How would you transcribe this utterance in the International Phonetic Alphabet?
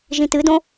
ʒĩtɨdõ

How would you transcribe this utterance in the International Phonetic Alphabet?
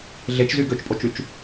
ɮet͡ʃzy ɡøt͡ʃpʼot͡ʃyt͡ʃ

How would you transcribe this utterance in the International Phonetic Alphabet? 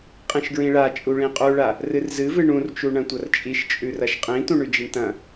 qʼĩʃɡɹĩɭa t͡ʃʼuɭĩqʼuɭa | rɨrzɨvɨ ɳũrt͡ʃu ɳɐ̃tʷɐrt͡ʃʼiʃ t͡ʃʼʉrɐʃqʼĩ tũɳʉd͡ʒiɳtɐ̃

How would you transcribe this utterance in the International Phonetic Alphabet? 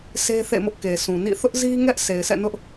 sʰe˦θḛ˦˨mʊ˦ʔke˨ sʰũ˨ nḭ˦˨ θʊ˦ʔzi˦ŋɛ˦ʔ sʰe˨ɪ̯sɛ̰˦˨nʊ˦ʔ

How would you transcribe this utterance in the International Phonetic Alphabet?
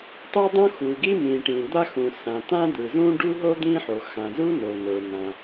tˤo˥dˤõ˥xu˩ɡi˥ mĩ˩ ʈĩ˩d̪a˥xũ˩ sã˩t̪ã˥d̪ɯ˩zũ˥ ɖu˥ɦo˥ d̪ĩ˥ħo˩ xã˩zu˥ no˩nə˞˩ nã˩

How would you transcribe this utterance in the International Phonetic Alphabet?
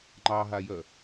ŋ͡ǃɑɦajœ

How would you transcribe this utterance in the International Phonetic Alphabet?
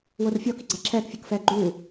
worfʲɔ kiɡ͡ǀaǁʰɛːk fʲɤkfɛːɡ͡ǃuː

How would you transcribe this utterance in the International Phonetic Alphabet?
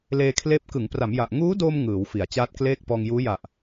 leː˧kʰleː˦˥p̚ kɯ˩˦ŋpra˩˦mja˨˩ʔ ŋuː˦˥doː˧m ŋɯː˩˦wfi˩˦a̯ t͡ɕaː˦˥t̚kleː˥˩k̚ pɔː˧ŋjuː˦˥ja˨˩ʔ

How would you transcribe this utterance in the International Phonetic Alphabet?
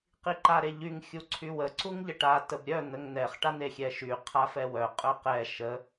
qiǃaɾeʎyŋ xʲuǀʰywə ǀuŋʎəʈa təbɾʲœ n̪əŋn̪ɛχ ʈan̪exʲɛʃy qʰafɛwœ qʼœqɛ ʃə

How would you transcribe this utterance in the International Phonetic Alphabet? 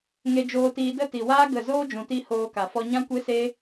ŋe˧d͡ʒoː˧tiː˧ də˦˨ti˨waː˦ ɡə˦˨ zoː˦d͡ʒũ˨ti˧ hoː˧ka˨ fɔ˧ɲã˦kʷe˦se˦

